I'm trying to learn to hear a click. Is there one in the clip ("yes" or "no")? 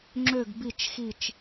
yes